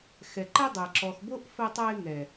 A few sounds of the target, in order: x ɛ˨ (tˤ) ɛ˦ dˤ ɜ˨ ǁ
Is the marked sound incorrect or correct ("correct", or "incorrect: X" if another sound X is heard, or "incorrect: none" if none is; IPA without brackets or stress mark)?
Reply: incorrect: ǃ